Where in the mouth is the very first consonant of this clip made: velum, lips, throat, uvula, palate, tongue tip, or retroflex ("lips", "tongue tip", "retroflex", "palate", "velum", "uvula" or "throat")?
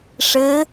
retroflex